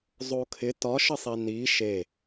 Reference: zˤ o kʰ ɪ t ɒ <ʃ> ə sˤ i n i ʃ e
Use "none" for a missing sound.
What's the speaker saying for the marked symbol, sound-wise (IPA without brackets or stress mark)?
ʃ